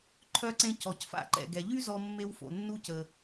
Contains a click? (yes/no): yes